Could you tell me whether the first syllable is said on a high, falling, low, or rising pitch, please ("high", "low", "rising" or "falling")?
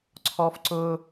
high